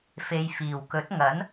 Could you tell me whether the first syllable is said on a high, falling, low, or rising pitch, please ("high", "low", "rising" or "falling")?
low